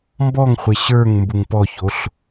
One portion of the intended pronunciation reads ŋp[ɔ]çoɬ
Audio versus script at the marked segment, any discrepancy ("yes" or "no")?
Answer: no